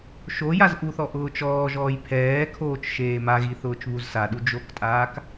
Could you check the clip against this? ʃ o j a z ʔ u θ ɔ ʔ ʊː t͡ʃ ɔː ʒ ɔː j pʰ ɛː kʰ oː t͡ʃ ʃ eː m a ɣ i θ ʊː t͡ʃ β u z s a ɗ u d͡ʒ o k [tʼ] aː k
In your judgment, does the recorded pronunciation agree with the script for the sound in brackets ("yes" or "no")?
yes